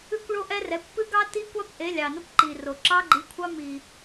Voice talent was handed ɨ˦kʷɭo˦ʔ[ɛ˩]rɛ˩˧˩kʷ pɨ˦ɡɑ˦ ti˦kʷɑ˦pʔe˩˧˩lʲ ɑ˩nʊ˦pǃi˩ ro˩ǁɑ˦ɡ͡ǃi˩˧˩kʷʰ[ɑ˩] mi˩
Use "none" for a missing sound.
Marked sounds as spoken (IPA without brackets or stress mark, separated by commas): ɛ˦, ɑ˦